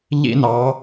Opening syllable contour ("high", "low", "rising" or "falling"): high